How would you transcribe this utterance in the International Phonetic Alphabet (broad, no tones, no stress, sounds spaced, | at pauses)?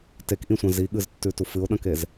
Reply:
t e k ʔ ĩ sʷ ɐ̃ z i ɠ ɨ z tː ʉ t u f ɨ ʊ̯ ɗ ɐ̃ k e z